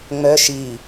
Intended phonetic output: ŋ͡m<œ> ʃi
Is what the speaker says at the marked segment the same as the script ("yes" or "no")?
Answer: yes